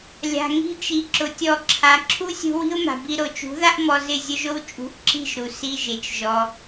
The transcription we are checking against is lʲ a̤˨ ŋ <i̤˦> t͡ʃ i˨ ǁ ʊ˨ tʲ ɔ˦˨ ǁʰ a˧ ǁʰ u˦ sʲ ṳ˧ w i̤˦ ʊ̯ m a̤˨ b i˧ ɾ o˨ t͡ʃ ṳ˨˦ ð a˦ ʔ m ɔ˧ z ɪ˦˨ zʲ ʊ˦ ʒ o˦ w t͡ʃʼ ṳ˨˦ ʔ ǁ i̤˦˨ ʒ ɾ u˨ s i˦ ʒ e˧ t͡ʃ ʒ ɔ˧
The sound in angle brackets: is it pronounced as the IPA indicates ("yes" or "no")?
yes